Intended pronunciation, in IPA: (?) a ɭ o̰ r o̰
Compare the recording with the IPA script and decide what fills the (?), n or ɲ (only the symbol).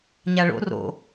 ɲ